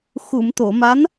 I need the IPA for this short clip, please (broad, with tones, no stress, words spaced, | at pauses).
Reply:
xu˨˩˨mt̪o˨˩˨ma˧˥n